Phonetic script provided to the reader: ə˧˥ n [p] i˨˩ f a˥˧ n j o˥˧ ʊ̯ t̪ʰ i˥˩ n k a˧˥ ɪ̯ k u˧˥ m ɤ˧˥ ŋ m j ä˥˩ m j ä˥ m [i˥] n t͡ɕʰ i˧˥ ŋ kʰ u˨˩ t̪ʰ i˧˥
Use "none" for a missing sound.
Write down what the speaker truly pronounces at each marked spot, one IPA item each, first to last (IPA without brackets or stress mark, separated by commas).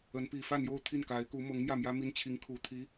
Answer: p, i˥